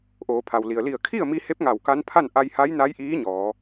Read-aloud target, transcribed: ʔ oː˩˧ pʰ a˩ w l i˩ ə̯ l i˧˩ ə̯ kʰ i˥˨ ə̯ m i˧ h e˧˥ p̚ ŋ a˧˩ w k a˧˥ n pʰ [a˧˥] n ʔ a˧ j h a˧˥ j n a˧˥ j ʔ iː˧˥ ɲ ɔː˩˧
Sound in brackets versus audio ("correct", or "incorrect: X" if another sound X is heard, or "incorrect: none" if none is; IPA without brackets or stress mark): incorrect: a˥˨